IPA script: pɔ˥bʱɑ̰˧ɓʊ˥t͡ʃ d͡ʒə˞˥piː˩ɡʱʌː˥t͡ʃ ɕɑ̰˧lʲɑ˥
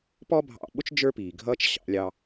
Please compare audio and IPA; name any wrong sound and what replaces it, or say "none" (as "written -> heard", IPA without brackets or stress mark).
ɑ˥ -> ɑ˧